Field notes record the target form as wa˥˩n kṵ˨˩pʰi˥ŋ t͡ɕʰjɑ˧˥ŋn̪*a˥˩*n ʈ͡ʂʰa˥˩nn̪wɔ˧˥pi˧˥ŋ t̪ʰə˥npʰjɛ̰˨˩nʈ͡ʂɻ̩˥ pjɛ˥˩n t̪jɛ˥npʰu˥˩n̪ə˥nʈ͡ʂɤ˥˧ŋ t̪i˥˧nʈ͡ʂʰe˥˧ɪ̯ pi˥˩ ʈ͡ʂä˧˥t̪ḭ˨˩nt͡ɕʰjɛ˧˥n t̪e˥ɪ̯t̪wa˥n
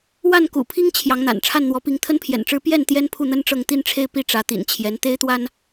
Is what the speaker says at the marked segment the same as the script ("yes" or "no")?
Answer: no